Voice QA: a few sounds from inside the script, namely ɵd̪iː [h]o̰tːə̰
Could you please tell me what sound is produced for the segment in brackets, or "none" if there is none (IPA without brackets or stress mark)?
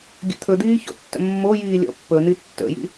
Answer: ç